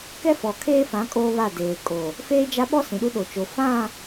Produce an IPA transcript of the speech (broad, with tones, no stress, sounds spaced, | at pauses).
k ɛ˦ f ɔ˨ kʰ eː˦ f ã˨˦ kʼ oː˦ β a˦˨ d eː˨ kʼ o˨ | f eː˦ d͡ʒ a˦ ɓ ɔ˦ s ĩ˨ ɗ u˦ ɗ o˨ t͡ʃ o˨ f ã˦˨